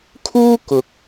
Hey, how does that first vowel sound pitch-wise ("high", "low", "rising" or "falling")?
high